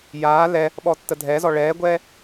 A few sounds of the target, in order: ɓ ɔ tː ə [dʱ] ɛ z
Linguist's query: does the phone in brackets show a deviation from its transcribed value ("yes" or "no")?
no